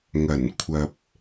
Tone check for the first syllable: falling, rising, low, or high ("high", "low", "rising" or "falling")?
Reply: low